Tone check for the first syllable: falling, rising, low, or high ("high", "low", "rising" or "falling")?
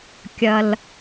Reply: low